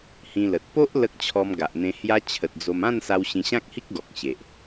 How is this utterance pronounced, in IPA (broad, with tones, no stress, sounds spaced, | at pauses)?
h ĩ˧ l ə˨ t̚ p o˦ ʔ l ə˦ k̚ t͡ɕʰ ɔ˧ m ɡ a˨ ʔ n̪ ẽ˧ h j a˧ t͡ɕʰ ə˨ t̚ d͡z o˧ m ã˥˧ n s a˧ w ɕ ĩ˧ ɕ ã˦ k̚ h i˦ k̚ ɡ ɔ˨ k̚ ɕ e˨ ʔ